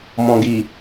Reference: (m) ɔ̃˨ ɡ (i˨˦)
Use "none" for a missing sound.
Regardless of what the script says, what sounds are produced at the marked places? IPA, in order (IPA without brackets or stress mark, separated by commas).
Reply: m, i˨